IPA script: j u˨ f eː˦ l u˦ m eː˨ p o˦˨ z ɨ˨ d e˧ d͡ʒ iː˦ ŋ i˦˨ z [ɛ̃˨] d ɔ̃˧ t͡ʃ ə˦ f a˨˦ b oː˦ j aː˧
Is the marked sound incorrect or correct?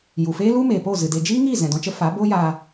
correct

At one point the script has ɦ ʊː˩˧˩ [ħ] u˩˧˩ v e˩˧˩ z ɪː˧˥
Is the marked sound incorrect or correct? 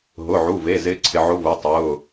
incorrect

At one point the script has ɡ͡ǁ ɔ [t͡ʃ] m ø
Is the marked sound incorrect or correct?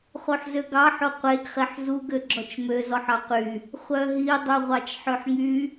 correct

